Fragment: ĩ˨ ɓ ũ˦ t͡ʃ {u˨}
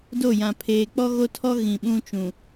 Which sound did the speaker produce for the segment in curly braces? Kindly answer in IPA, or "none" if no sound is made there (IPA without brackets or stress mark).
ũ˨